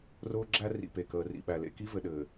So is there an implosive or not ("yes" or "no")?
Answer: yes